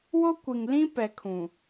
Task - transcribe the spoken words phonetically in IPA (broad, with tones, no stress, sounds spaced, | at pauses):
w o˦ kʷ i˨ ŋ l ĩ˦ p ɛ˨ kʰ ũ˨